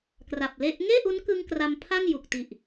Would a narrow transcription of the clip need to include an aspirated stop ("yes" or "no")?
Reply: yes